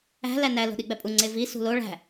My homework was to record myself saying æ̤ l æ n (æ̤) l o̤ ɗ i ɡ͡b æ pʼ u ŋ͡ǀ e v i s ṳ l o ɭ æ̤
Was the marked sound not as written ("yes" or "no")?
yes